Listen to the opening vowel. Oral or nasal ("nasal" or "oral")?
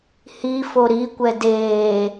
oral